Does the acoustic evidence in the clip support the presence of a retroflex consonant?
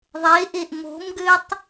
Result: no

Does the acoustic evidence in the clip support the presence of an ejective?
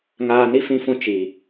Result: no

